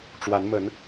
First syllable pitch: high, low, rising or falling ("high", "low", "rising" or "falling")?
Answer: rising